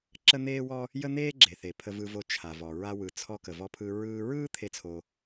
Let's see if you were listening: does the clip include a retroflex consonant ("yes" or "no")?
no